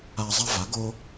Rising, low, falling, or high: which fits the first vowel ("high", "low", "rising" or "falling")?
high